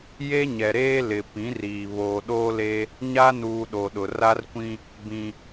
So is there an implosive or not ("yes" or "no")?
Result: yes